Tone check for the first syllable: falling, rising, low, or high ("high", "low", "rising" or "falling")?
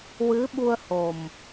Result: rising